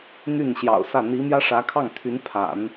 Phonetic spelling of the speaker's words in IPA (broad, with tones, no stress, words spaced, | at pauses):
n̪y˥˩nɕjɑ̰˨˩ʊ̯sä˥˩ n̪i˧˥ mjä˥ʂä˧˥kʰɑ˥˩ŋt̪ʰy˧˥n pʰa̰˨˩˦n